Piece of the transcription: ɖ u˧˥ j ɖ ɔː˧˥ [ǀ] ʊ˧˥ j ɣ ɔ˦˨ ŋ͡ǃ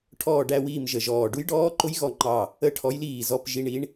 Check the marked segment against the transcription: incorrect: ǃ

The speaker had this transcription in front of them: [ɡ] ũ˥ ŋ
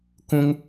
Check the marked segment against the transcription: incorrect: k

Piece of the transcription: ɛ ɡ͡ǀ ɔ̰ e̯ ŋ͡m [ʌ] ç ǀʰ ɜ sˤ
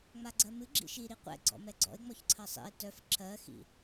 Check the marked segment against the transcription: incorrect: ɔ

